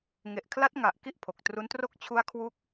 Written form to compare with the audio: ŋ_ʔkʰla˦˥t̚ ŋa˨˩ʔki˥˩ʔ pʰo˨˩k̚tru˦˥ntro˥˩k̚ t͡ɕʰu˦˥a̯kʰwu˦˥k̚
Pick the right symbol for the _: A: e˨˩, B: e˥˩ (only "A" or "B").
A